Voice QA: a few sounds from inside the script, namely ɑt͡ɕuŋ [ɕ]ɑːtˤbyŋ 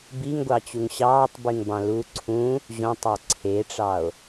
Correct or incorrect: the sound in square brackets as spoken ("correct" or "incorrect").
correct